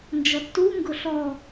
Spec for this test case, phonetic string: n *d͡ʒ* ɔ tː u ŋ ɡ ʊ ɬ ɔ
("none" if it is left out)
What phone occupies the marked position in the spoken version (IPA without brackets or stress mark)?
d͡ʒ